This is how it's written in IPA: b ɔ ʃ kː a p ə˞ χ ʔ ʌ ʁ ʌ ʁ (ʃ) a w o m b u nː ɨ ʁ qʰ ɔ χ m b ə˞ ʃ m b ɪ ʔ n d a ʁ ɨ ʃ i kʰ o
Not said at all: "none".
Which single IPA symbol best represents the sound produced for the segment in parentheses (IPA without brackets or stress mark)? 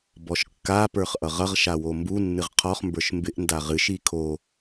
ʃ